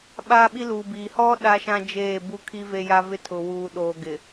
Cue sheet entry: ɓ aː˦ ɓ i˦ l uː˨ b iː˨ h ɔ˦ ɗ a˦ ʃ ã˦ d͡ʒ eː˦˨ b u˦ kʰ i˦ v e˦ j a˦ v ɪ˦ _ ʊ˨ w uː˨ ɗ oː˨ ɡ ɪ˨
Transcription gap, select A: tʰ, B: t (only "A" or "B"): A